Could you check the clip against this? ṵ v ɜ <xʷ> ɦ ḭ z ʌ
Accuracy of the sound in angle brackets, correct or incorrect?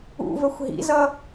correct